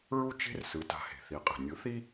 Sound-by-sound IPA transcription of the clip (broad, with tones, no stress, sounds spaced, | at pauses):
ɹ u˥ t͡ʃ e̤˥ r s ɯ˩˥ t a̤˩˥ h e̤˩ θ i˩˥ qʼ e̤˩ nʲ ɯ˩˥ θ i˥